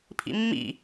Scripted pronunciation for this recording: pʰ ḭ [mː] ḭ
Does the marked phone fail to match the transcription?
no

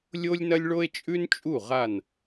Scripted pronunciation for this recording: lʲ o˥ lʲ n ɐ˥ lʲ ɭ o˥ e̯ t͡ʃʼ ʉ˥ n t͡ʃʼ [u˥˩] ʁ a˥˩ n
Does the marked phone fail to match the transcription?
no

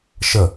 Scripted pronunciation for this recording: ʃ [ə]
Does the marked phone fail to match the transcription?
no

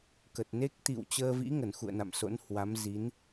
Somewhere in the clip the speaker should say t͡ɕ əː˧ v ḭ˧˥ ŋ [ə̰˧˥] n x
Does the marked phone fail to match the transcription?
yes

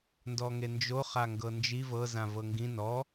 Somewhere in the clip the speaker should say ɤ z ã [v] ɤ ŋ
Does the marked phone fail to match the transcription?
no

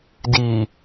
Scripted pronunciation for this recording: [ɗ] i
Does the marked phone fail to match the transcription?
yes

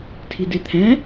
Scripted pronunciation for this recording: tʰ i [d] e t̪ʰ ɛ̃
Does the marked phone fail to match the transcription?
no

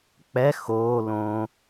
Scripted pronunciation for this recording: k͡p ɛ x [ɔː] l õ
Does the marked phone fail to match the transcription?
yes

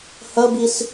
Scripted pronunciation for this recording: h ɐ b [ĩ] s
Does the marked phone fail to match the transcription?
yes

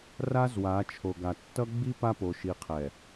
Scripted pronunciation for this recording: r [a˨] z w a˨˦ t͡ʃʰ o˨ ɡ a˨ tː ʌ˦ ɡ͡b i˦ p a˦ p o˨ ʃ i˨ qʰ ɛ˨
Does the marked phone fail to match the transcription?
yes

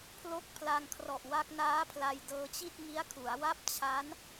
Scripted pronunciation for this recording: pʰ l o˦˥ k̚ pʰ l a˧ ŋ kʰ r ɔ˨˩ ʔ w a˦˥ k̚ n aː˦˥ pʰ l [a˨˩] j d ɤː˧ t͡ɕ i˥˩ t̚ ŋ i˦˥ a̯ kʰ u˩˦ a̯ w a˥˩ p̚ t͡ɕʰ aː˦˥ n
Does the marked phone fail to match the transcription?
yes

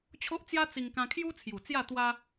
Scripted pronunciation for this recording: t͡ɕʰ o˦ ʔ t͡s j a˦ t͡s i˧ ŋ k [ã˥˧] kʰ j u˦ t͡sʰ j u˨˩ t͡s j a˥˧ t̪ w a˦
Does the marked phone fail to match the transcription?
yes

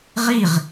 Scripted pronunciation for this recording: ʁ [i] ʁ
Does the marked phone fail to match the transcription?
no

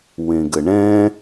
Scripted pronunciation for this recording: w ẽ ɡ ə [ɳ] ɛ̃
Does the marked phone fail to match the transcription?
no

